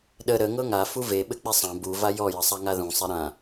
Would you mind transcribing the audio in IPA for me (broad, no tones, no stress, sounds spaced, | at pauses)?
ɗ ə ɾ ə ŋ ɤ ŋ a f u v e ɓ ɘ k͡p e sˤ ã b u v a j ɔ j ə sˤ a ŋ a ð ũ sˤ e ɾ ã